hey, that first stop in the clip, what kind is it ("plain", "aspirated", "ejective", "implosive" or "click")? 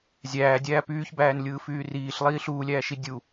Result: plain